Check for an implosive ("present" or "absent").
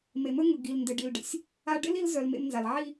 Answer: absent